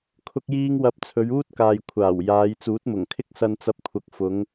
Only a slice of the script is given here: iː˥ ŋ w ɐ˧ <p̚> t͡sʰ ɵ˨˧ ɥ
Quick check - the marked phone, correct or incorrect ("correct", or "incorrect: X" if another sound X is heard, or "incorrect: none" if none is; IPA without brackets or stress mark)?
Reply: correct